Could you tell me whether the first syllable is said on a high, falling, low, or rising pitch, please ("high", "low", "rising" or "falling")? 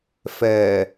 low